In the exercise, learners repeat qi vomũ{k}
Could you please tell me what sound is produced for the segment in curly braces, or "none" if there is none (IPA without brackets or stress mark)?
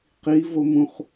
χ